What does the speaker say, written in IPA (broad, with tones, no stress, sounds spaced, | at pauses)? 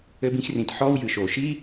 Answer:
ɘ˧ b ĩ˧ x r ĩ˩ t ħ ɔ˥ w j ɨ˩ ʃ o˩ ʃ i˥